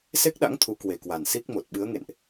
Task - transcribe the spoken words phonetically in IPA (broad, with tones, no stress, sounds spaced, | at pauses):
s e˦˥ k̚ ɗ a̰˧˥ ŋ t̪ʰ u˨˦ k w e˨˩ k w a˨˩ n s i˦˥ k̚ m o˨˩ t̚ ɓ ɨ˨˦ ə̯ ŋ ḛ˧˨ n ʔ